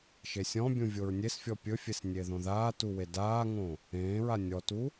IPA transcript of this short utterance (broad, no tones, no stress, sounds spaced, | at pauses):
ʃ e sʲ ɔ̃ bʲ ũ vʲ o ɹ nʲ e s fʲ ɔ pʲ ɵ fʲ e s nʲ e ð õ ð aː t u w e d aː ŋ õ | ẽː ɹ a nʲ ɔ t u